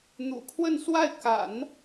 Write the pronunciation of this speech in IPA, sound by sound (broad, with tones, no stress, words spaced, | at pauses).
n̪ṵ˨˩kʰwə˥˧nswa˥˩ɪ̯ ka̰˨˩˦n